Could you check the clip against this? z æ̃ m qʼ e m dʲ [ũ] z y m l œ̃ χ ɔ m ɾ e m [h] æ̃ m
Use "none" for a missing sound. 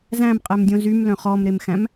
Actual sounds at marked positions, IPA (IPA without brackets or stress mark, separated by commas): õ, x